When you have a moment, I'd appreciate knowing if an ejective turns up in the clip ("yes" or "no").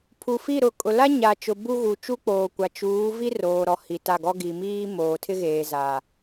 yes